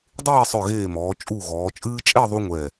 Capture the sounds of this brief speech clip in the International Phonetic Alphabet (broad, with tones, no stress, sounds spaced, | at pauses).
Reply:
dˤ eː˥˧ sˤ œ˧˩ ɣ eː˧˩ m ɔː˩˧ t͡ʃʼ u˧˩ ɣ ɔː˩˧ t͡ʃʼ ɨː˥ t͡ʃʼ ɛ˥˧ ðˤ u˧ ŋʷ ɛ˧˩